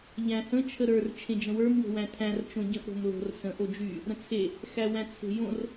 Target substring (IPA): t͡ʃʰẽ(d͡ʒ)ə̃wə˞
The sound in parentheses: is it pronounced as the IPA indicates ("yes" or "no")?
yes